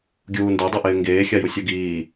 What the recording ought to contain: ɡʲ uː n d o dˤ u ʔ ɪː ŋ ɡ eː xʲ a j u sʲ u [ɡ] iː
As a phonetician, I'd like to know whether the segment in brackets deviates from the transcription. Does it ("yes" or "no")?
no